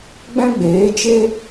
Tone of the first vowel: high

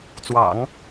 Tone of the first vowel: low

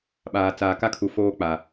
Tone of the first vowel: low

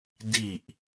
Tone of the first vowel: low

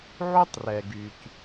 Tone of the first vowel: high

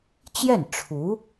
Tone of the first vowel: falling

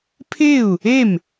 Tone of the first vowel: falling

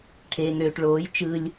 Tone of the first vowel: low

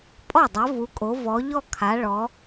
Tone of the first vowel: falling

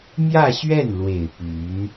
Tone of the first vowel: falling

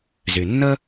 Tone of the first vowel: low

